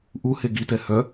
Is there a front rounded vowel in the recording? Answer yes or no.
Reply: yes